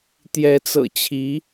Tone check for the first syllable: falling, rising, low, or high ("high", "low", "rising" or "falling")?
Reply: rising